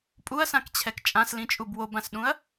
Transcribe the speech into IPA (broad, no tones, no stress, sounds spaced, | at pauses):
pʼ u ɐ̯ s ã k t͡ɕʰ ɛ k t͡ʃʼ ã s l ĩ t͡ʃʼ u b w o b ã s ɗ ũ ɐ̯